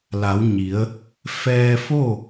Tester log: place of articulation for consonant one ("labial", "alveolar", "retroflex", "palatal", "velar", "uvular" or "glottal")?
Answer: alveolar